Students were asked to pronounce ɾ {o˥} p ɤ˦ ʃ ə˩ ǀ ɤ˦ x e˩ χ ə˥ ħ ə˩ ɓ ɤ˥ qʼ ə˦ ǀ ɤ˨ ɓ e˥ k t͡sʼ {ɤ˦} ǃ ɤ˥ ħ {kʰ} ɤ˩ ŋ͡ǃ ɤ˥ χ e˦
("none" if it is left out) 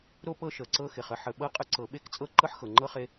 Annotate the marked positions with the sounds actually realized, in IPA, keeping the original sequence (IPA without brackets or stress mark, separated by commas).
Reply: o˥, ɤ˦, x